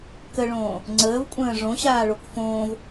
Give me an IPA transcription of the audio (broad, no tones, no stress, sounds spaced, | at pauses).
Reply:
k ə ɭ õː | ŋ͡ǀ əː v kʷʼ ə̃ː ʐ õ ɕ aː ɭ o k f õː v